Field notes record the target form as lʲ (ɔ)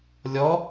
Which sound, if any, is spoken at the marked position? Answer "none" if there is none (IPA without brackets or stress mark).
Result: ɔ